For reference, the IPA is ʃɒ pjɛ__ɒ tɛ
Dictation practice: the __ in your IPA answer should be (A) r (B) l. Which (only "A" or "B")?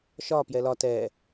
B